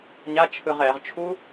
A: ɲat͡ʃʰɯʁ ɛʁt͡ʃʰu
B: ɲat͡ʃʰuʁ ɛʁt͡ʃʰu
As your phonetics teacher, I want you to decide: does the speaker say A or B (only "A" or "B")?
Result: A